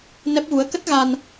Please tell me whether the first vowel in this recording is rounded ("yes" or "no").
no